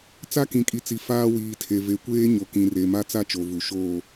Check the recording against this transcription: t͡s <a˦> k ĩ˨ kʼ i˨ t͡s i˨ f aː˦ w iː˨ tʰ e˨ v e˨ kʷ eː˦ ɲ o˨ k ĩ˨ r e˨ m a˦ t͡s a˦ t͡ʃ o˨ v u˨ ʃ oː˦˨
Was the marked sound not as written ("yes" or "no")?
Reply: no